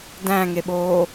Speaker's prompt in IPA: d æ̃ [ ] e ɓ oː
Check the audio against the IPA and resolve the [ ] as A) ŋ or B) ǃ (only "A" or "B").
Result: A